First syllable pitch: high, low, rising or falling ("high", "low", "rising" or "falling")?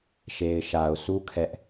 low